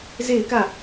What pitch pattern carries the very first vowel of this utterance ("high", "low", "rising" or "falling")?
falling